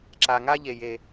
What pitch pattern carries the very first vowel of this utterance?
high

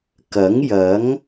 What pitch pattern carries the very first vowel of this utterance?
rising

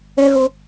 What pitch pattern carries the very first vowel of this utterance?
high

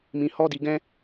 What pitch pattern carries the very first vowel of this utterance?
low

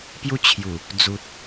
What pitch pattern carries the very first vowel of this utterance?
high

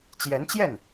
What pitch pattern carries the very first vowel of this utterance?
rising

